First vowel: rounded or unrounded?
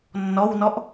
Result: rounded